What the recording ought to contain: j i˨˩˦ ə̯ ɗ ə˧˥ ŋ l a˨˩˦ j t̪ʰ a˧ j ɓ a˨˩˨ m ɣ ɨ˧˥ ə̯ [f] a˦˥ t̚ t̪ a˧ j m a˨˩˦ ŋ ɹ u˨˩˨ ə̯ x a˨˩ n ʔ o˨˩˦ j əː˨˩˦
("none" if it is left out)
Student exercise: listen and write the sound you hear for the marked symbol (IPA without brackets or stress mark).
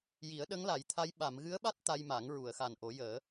ɓ